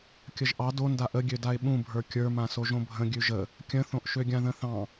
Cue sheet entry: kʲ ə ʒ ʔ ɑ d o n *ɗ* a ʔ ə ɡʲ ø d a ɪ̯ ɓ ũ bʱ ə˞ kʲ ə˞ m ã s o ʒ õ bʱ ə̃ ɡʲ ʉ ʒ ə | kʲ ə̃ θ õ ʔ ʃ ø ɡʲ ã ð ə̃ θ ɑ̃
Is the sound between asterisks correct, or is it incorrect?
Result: incorrect